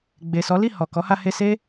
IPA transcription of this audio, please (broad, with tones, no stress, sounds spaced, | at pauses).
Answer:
ɡ͡b e˨ s ɔ˨˦ l i˦˨ h ɔ˨ k ɔ˨˦ h a˧ h e˧ s e˦